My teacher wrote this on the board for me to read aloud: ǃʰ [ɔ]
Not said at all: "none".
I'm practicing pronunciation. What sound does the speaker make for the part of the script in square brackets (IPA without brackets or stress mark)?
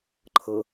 ɤ